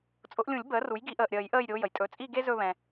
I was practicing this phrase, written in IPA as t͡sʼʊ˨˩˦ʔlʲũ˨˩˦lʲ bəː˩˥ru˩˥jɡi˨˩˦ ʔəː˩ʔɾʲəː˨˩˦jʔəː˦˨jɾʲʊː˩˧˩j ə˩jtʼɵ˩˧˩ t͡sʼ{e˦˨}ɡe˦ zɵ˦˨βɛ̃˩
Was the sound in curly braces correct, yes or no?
no